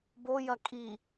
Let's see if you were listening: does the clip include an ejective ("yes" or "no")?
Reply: yes